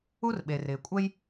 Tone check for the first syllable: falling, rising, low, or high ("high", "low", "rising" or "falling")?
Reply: high